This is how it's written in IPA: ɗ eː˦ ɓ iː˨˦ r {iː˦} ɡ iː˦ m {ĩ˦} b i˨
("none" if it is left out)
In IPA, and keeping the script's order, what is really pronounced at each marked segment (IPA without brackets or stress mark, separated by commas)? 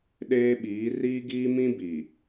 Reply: iː˦, ĩ˦